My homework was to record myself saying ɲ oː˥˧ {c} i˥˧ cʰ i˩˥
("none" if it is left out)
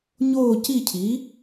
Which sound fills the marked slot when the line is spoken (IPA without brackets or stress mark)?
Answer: c